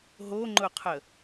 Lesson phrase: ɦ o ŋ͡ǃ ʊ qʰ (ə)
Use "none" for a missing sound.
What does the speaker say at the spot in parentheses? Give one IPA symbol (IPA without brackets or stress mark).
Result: ə